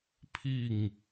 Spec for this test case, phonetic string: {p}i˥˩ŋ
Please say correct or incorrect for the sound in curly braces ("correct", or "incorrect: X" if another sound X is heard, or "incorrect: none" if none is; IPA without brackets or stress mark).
incorrect: pʰ